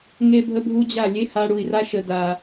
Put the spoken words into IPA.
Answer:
ŋ e˦ bʱ ə˦ bʱ u˦ d͡ʑ a˦˨ lʲ e˦ h a˧ ɽ u˨ i̯ r a˧ ʃ ə˨ d a˨

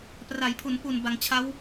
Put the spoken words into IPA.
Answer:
p r a˩˦ j pʰ u˩˦ n p u˨˩ n b a˩˦ ŋ t͡ɕʰ a˦˥ w

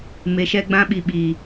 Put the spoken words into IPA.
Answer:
m e˧ ʃ ɛ˦ ɡ͡b ã˦ ɓ i˧ ɓ iː˨

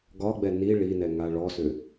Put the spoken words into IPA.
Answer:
ɡ ɒ ɡ͡b ɛ n i ɭ i n ɛ ŋ a ɭ ɔ s ʏ

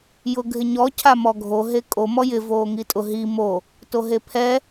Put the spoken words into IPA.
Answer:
j ʊ ɡʱ ɪ ɲ ɔ cʰ a m ɔ ɡʱ o ɦ e kʼ o m ɔ j ɪ v oː ŋ i tʼ ʊ ɦ i m o | t o ɦ e pʰ ɛ

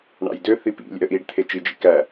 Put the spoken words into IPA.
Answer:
ɳ ɑ̰ j d ø θ i p ḭ lʲ ɛ̰ ə̯ ʔ i ɖ t̪ʰ e t͡ʃ i d͡ʒ ḭ k æ

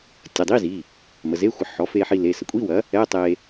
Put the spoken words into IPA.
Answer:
tʲ ə˩˧˩ dˤ i˧˥˧ z i˩˧˩ | m ə˩˧˩ z e˧˥˧ xʷ ə˩˥ ħ ɔ˩˥ f e˧ ħ i˧ l e˩˧˩ s ə˩˥ kʷʼ i˧˥˧ w ɐ˩˥ | ɛ˧˥˧ tˤ e˧

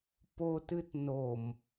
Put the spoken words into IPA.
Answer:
p o t ɨ t n o m

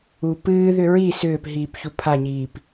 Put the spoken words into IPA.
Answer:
u p ɨː ð ʏ ɹ i s ʏː p ɦ iː p ç u pʰ a ɲ iː p

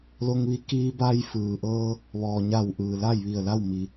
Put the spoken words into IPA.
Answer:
l o˧ ŋ ʋ i˧˥ k iː˧ b a˧ j f ɯː˩ ʔ ɤː˧ | ʋ ɔː˩ ɲ a˧˩ w ʔ ɯː˩ l a˥˨ j ʋ i˧˩ ə̯ l a˥˨ w m i˩

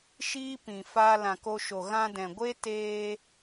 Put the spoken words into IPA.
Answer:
ʃ iː˦ p ĩ˨ f aː˧ l ã˨ k o˧ ʃ o˨ ɣ ã˧ d ɛ̃˨ ɡʷ e˦ t eː˧

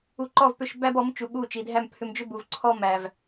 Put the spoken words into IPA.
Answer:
u˧ ǃ ɔ˦˨ v p ʏ˦˨ ʃ b æ˦ b ɔ˨˦ m t͡ʃ u˨˦ ɓ u˦˨ t͡ʃ i˨ dʱ æ˦˨ m pʰ ʏ˧ m d͡ʒ ʏ˦ b u˨ v ǀʰ ɔ˦ m æ˨ v

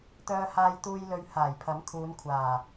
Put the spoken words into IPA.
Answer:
t̪ œː˨ h aː˨ j t̪ uː˨ j l ɵ˧ ɥ h aː˨˩ j pʰ ɐ˨˥ m kʰ uː˨˧ n kʷʰ aː˨˩

